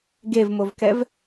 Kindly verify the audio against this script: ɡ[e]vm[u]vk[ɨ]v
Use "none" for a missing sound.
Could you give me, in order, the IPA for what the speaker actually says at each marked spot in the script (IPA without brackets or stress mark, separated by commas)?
e, o, ɛ